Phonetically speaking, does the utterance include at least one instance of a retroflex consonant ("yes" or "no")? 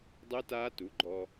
no